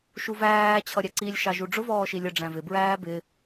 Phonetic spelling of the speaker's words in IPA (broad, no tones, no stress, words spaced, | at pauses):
ʃuvæː t͡ɕʰʌɾʲæǀilʲ ʃɑʒuɖ͡ʐʊ vɔːʃilʲə ɖ͡ʐæ̃vɪ bɹæːbɪ